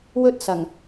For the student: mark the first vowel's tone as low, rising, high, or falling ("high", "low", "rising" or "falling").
high